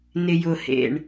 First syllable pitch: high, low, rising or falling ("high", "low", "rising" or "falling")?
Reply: low